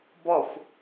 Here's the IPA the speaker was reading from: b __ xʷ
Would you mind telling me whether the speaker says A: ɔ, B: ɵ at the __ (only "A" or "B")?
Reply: A